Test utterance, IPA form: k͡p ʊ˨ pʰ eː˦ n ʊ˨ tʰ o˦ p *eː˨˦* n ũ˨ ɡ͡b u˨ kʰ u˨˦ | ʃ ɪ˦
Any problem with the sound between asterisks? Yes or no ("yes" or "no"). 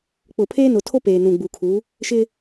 yes